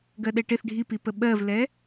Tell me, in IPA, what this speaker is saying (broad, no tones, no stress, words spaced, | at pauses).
ɡɜɗɛʈɪθ ɖʱipipə ɓɜvlɛ